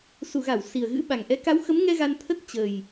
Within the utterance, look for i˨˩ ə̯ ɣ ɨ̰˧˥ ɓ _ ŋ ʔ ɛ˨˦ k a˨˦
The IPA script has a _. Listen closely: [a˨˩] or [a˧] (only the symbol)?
a˨˩